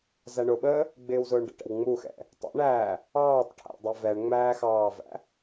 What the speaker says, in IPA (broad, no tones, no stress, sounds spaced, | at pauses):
z æ ɳ ʊ ɓ əː | ɡ͡b ɪː w z ʊː ɳ ɖ ə̰ ʈ ɛ̰ w ŋ͡m u x ɛ̰ | tˤ ə̰ ɳ æː | ɑː tˤ ʈʰ æ̰ dˤ ɛ v ɛ ɳ ŋ͡m æː x ɑː v æ̰